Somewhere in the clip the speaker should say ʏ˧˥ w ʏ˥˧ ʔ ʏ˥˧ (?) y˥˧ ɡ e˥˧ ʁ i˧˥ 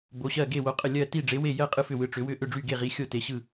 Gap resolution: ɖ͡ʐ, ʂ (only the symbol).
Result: ɖ͡ʐ